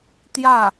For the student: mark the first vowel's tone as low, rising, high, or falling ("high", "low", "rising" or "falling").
falling